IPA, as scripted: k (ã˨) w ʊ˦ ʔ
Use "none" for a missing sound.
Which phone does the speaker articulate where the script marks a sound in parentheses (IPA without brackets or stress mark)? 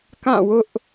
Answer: ã˦˨